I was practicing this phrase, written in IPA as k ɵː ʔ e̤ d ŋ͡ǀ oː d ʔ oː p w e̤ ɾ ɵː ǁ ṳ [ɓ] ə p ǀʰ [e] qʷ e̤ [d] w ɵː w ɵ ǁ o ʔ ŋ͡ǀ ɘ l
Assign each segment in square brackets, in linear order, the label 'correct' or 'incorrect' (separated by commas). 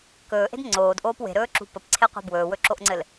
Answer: incorrect, correct, incorrect